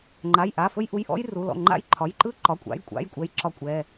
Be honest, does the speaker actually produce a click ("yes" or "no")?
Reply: yes